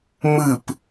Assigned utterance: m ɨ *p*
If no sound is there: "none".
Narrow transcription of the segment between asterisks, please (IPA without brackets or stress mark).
p